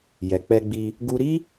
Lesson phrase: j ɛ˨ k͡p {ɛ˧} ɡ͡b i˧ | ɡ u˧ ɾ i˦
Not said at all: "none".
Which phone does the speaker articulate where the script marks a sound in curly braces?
ɛ˧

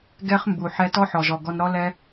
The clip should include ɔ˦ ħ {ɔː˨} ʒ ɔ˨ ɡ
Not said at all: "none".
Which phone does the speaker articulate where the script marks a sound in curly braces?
ɔ˨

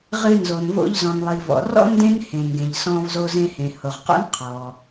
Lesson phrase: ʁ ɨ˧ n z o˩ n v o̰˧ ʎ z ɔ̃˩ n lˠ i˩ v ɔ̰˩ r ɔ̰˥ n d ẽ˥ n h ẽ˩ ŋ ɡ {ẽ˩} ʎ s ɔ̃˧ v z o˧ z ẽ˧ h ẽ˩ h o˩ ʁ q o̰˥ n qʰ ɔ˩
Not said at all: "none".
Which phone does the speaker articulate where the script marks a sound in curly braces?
ẽ˩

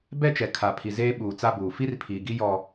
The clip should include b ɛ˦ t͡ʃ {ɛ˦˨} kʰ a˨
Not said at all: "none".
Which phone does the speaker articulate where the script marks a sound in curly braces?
ɛ˨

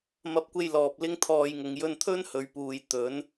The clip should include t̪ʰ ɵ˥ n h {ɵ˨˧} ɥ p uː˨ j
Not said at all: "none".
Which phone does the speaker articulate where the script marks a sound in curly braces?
ɵ˨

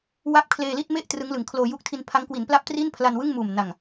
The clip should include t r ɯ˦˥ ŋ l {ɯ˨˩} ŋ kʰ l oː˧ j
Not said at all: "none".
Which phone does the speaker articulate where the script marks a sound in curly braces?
ɯ˨˩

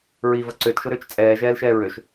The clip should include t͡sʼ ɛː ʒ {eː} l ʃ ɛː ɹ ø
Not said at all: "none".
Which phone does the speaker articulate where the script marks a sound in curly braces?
ɛː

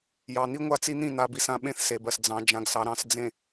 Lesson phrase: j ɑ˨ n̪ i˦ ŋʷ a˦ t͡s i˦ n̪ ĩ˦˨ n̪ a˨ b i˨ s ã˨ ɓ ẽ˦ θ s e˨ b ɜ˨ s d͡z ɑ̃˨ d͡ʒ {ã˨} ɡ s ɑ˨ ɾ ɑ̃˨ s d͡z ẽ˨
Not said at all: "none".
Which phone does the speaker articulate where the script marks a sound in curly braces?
ã˨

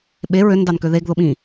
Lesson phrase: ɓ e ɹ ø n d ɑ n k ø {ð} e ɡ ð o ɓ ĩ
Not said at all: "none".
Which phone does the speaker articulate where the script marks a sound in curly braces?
ð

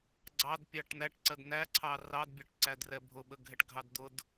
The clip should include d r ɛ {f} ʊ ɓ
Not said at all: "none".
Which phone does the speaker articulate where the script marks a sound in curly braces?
bʱ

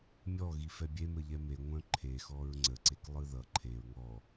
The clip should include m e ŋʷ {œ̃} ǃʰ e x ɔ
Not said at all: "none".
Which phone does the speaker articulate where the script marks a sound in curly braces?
œ̃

